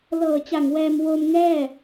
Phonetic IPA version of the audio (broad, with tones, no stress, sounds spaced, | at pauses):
l ɤː˨˩ t͡ɕ a˨˩ ŋ w ɛː˧ m w o˧ m ŋ ɛː˥˩